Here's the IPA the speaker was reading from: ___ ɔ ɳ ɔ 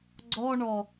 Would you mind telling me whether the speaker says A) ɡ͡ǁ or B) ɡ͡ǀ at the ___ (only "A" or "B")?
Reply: B